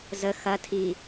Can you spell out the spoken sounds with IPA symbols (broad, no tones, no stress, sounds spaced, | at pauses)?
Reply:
z ə x ɐ tʰ i